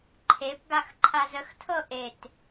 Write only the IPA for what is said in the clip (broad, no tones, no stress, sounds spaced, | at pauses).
ǃʰ e p ɡ a x ǃʰ a z ə x tʰ ɤ ʔ e t